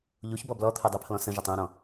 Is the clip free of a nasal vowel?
no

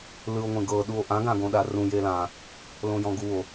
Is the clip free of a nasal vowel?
no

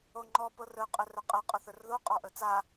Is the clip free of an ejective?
no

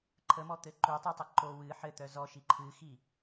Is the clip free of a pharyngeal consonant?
no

